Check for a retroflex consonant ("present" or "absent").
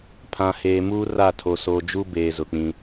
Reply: absent